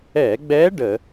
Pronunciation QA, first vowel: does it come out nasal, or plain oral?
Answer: oral